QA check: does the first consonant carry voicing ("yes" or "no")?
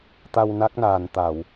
no